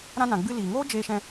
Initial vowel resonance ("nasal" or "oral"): nasal